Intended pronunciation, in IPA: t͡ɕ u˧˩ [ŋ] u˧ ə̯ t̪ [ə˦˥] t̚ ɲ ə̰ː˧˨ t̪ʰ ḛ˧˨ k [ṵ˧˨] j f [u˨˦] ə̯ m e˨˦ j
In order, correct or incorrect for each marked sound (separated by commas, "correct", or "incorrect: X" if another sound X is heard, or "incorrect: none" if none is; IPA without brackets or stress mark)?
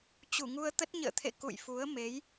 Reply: correct, correct, correct, correct